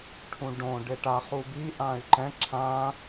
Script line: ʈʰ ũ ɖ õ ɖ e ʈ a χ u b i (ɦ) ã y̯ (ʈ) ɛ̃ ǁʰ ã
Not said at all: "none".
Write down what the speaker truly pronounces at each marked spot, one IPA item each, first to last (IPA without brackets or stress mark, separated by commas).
ʔ, ǃ